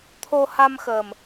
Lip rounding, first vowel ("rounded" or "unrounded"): rounded